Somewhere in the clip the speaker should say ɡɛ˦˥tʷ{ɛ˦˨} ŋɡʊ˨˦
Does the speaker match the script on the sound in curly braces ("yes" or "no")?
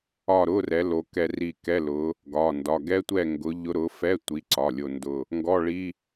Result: yes